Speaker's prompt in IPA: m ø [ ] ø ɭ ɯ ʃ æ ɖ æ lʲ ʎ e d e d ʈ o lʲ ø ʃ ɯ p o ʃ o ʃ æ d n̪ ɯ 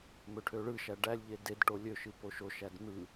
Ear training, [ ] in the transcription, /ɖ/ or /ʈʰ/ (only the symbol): ʈʰ